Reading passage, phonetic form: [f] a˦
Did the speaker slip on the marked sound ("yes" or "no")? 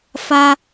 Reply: no